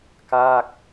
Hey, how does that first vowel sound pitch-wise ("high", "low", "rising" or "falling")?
falling